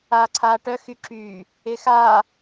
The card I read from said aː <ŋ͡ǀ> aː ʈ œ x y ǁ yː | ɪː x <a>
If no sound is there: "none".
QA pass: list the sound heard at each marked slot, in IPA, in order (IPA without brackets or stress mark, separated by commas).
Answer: ǀʰ, aː